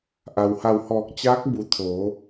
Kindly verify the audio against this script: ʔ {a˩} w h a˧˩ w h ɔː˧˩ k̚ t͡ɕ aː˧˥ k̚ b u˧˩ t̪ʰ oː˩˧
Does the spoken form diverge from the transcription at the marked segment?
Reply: no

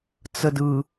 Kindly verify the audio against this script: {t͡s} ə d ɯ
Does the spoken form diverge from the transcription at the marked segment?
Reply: no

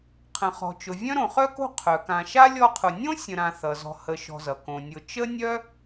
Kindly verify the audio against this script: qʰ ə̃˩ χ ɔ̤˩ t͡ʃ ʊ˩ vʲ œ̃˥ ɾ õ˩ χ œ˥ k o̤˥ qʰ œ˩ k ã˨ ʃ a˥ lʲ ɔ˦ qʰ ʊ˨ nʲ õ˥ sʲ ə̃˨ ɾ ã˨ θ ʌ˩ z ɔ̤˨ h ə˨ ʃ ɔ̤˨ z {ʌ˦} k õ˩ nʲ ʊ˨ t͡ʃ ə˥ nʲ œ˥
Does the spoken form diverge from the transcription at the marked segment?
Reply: yes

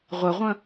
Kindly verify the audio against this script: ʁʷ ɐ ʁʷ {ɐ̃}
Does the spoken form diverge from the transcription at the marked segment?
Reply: no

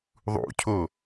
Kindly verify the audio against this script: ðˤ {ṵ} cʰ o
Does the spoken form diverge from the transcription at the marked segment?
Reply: no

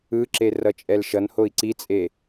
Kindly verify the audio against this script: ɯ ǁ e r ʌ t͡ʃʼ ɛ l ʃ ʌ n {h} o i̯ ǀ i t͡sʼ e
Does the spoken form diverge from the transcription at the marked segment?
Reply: no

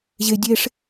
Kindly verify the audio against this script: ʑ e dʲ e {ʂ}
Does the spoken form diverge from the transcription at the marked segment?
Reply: no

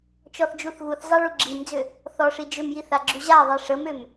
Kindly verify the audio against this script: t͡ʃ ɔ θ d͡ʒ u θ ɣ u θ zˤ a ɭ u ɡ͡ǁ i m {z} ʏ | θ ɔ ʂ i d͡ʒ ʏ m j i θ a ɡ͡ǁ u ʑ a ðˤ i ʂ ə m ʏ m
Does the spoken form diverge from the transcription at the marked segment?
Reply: yes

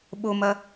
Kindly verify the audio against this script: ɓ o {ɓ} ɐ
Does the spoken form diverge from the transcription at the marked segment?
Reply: yes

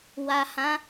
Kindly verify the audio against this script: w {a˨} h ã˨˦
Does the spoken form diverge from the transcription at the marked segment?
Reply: no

